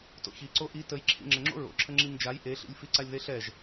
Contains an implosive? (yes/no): no